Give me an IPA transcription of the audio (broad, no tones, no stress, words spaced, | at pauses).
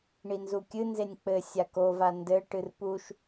ɳinzukʲɨnzenʲ k͡pɘ sʲakova ndɘʈɨr puʃ